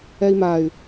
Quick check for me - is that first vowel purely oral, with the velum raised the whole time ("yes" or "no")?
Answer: yes